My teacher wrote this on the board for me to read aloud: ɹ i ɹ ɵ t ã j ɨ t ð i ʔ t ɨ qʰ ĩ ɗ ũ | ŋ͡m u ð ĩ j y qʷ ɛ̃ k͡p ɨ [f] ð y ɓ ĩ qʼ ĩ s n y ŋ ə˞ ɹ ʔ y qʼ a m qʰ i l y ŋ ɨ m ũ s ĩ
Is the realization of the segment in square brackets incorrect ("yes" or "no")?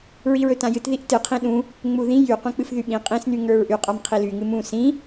no